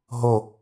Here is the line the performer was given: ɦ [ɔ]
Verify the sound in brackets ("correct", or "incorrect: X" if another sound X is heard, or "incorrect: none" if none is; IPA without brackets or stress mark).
incorrect: o